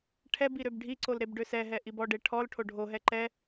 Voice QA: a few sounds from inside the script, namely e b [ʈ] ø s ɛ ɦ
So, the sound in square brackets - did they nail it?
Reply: no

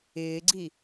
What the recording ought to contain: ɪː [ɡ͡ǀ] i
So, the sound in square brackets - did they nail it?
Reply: yes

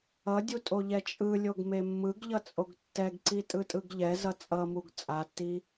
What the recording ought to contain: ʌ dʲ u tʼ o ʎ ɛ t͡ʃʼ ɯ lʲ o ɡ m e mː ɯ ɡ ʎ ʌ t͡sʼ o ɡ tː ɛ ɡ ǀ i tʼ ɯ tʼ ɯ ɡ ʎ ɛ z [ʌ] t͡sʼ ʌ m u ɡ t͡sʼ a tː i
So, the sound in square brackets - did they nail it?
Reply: yes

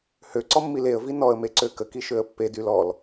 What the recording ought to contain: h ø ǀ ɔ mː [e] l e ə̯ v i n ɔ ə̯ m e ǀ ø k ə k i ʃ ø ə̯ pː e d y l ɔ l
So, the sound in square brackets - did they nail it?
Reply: no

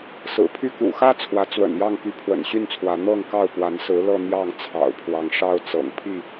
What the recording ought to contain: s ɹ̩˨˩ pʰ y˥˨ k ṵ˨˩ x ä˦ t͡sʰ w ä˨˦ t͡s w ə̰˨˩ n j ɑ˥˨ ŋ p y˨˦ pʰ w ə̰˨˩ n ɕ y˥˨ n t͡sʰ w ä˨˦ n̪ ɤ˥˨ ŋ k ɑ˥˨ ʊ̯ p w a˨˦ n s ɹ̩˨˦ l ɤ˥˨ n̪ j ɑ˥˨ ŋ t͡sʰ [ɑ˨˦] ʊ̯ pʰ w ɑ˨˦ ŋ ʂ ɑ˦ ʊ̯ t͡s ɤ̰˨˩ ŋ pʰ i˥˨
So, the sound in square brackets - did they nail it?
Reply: no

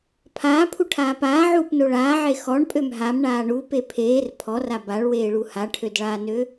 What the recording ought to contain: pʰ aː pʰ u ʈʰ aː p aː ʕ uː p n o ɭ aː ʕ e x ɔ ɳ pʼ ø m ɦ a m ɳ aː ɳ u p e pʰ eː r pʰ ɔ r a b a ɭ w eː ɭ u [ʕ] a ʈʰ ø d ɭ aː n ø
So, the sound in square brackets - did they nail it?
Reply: no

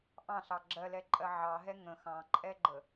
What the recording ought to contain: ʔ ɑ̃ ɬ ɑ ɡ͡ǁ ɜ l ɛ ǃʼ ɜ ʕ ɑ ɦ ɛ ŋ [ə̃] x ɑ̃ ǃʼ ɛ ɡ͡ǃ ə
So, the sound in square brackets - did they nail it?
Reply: yes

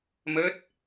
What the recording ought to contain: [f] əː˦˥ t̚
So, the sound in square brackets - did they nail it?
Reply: no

